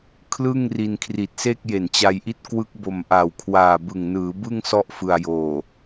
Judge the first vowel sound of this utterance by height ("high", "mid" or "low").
high